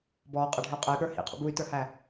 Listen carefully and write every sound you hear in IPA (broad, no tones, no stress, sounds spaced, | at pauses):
b ɔː qʼ ʌ ɖʱ ɪ u̯ qʼ ɛ y̯ ɠ ə˞ h ḭ qʰ ṵ b u y̯ t ə˞ h æ